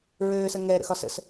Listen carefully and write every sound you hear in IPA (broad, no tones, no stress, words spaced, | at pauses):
ɹøːsə ŋɛɾə̰xɒ sə̰s